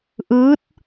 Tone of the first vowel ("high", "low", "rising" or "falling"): rising